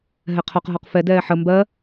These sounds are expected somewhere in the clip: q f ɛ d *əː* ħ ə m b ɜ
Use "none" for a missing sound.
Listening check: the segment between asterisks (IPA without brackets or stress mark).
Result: ɛː